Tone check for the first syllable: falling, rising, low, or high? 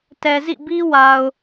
low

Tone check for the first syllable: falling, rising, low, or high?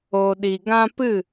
low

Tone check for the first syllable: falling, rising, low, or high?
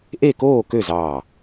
falling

